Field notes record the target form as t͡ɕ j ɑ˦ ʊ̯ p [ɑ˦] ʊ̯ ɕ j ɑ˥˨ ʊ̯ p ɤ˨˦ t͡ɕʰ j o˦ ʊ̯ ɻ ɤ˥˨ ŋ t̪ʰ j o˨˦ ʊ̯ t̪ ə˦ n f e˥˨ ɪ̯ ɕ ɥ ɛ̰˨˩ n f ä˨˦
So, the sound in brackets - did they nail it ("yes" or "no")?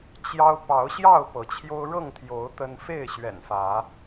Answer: no